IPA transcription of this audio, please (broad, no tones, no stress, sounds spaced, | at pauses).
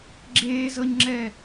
ɡ͡ǁ eː z ɤ ɲ ŋ͡ǁ ɛ